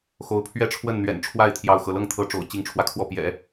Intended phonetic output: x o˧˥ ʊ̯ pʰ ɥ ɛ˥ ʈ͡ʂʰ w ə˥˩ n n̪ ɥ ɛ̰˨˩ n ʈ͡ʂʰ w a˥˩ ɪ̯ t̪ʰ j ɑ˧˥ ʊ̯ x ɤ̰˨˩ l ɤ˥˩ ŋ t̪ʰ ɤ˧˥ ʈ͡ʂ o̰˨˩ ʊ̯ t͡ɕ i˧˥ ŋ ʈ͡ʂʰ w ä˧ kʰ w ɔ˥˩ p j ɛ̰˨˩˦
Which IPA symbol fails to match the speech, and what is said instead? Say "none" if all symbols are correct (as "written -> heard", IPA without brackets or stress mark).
none